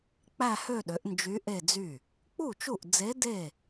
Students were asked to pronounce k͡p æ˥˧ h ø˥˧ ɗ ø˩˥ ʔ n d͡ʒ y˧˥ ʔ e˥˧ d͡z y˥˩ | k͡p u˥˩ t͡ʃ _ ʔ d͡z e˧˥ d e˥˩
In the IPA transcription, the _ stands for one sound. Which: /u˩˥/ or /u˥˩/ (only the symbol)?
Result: u˥˩